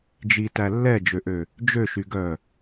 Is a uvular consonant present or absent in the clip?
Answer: absent